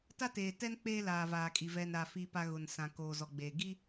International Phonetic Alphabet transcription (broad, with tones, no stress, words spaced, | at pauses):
ta˦teː˨tɛ˦n k͡peː˦laː˨vaː˨kʼi˨ vɛ˨nɾa˨ fi˨pa˨ ɣʊ˨nsã˨ koː˨zɔ˨ɡ͡be˨ ɡi˦